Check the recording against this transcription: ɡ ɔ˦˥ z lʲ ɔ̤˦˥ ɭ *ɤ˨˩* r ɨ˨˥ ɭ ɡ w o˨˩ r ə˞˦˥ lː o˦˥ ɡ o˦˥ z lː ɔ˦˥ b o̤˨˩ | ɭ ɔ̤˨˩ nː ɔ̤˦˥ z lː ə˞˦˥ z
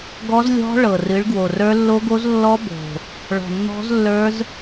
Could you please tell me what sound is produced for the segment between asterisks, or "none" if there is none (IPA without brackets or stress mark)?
ɤ˨˩